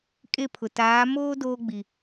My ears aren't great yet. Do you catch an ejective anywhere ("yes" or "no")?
yes